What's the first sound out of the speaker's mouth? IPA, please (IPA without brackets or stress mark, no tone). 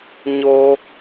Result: ɲ